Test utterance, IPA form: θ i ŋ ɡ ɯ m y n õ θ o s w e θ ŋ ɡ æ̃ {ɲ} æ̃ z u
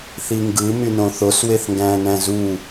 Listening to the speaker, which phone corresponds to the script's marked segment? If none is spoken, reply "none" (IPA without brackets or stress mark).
n